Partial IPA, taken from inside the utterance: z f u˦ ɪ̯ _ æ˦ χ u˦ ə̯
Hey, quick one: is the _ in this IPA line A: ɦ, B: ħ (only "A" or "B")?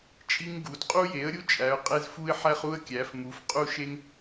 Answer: B